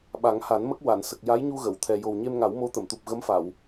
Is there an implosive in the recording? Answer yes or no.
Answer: yes